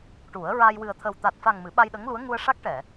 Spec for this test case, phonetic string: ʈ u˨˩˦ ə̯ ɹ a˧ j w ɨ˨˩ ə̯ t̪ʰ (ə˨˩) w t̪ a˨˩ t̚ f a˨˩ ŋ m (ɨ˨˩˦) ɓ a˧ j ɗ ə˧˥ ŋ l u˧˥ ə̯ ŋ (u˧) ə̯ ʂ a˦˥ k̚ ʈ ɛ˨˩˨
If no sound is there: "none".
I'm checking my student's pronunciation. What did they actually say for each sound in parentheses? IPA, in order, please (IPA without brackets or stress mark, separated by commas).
ə˨˩, ɨ˨˩˦, u˧